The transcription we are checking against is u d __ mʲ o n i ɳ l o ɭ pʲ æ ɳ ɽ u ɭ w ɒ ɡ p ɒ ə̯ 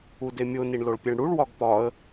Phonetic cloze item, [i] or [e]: e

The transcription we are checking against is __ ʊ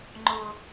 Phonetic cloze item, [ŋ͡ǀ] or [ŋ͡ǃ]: ŋ͡ǃ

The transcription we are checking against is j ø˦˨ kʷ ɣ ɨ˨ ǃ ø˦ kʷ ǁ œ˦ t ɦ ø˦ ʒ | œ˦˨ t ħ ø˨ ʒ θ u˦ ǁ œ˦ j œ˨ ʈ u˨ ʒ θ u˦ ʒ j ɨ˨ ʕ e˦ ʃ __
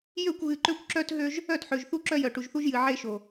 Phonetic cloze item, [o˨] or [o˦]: o˨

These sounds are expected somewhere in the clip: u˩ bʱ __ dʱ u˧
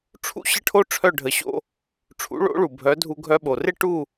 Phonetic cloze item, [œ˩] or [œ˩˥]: œ˩˥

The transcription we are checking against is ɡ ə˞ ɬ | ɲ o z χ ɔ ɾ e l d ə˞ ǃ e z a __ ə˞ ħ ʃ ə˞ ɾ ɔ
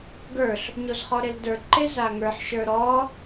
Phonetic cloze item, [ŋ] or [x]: ŋ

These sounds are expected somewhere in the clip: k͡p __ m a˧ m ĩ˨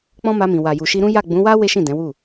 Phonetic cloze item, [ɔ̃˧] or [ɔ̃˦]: ɔ̃˦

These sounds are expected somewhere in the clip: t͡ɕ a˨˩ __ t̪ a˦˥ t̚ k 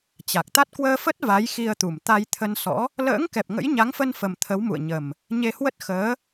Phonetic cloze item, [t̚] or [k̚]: k̚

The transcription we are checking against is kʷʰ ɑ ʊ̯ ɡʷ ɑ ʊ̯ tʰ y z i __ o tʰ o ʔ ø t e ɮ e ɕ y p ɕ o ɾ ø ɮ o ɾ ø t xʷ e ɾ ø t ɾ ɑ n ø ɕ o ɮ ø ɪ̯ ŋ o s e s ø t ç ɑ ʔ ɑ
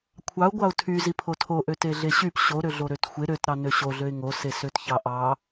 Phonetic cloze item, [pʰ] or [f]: pʰ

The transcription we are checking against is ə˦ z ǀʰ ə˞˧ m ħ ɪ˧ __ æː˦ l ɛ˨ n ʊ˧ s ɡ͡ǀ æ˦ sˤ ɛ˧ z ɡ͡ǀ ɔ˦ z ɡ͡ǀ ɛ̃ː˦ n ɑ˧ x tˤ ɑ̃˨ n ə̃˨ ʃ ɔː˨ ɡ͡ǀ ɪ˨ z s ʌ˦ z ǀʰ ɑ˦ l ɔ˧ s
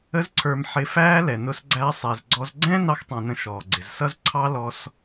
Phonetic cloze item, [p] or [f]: f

